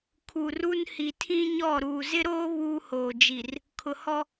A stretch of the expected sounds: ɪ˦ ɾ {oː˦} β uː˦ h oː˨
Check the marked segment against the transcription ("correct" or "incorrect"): correct